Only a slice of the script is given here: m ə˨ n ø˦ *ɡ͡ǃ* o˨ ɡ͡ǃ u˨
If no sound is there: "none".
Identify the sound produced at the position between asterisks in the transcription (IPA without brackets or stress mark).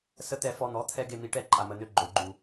ɡ͡ǃ